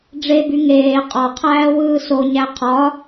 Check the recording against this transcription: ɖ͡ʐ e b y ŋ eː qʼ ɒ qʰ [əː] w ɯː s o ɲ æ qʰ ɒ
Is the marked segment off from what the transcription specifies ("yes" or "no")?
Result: yes